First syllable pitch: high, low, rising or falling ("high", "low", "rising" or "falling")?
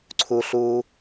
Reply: high